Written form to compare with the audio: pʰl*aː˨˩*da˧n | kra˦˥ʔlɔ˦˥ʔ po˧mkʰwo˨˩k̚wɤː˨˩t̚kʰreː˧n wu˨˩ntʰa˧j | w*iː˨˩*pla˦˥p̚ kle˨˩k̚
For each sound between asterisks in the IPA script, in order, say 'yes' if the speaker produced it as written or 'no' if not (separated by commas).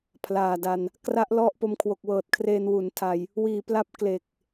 yes, yes